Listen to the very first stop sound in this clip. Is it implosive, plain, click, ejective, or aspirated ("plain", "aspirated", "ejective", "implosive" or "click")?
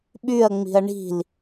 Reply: implosive